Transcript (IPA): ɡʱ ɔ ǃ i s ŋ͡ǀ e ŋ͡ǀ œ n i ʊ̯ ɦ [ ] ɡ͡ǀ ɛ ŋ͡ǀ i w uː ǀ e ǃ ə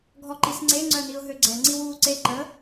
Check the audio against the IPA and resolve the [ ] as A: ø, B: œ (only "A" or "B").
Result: A